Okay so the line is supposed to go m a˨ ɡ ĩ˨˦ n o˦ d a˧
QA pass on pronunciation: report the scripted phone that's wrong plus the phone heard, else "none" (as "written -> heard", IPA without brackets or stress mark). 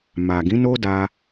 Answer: none